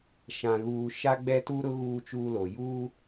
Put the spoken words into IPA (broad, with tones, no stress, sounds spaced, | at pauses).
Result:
ʃ ã˨ ɣ uː˨ ʃ a˦ ɡ͡b ɛ˦ t u˦ ɾ ʊ˦ ɣ uː˦ t͡ʃ uː˦ l o˨ j uː˦